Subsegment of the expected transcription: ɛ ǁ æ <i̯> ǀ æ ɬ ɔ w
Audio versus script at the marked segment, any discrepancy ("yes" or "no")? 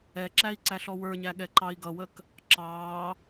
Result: no